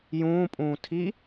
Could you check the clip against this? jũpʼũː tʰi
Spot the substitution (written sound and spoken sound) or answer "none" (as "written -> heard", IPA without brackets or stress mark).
ũ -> ũː